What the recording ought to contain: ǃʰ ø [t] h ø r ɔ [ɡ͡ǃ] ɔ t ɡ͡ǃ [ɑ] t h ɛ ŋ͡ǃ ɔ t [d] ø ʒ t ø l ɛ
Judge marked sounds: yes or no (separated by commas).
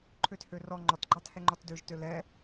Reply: yes, no, yes, yes